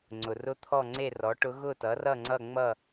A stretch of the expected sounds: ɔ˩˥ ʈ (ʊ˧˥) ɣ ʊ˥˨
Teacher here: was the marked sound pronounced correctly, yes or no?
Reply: yes